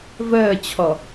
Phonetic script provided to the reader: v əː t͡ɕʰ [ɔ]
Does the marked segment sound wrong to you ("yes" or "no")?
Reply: no